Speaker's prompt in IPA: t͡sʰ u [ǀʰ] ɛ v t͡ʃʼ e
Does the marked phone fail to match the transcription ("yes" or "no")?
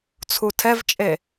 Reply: yes